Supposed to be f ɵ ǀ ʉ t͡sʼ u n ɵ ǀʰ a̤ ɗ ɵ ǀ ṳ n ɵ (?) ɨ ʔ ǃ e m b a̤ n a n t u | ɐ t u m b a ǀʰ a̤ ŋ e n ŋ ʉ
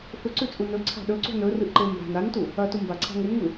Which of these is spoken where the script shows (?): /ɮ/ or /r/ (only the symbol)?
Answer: r